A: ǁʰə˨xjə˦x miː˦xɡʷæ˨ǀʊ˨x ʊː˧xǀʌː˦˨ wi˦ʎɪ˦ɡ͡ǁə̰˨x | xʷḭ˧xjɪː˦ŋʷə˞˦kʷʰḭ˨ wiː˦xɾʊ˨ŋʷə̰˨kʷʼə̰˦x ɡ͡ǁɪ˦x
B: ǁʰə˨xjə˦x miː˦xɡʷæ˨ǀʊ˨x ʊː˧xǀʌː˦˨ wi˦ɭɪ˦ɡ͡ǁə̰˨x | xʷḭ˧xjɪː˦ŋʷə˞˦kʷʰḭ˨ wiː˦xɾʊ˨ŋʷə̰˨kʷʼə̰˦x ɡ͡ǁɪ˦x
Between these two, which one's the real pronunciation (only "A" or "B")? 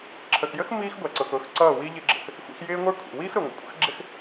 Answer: A